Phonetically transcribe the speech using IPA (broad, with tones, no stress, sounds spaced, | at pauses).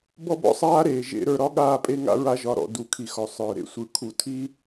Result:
b ɔ˦ b ɔ̰˦ sˤ aː˦ ɾ eː˨ ʒ ḛ˨ ɾ ə˞˨ ɾ ɒ˦ ɠ aː˦˨ pʼ e˦ ŋ a̰˦ ɹ a˦ ʒ ɒ˨ ɾ ɔ̰˨ d u˨˦ kʰ i˨ x ɔ˨ sˤ ə˞˨ ɾ ḛ˨ sʷ ɯ˨ kʰ u˨ tʰ i˦